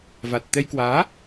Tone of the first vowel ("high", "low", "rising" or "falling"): low